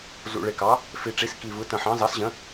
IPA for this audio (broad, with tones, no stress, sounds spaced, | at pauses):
z ṵ˨˩ ɭ ɪ˨˩ k ɑ˩˥ | f i˨˩ ʈ͡ʂ i˩˥ s k i˨˩ v ɯ˩˥ t ə̃˨˩ ħ ɑ̃˩˥ z ɑ˩˥ s ʑ ə̃˩˥